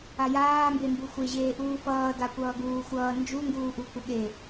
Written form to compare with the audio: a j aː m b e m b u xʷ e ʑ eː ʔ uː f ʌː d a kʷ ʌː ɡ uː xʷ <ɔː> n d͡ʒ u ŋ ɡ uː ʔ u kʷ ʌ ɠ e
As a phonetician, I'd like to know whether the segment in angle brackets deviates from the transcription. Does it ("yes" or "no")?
yes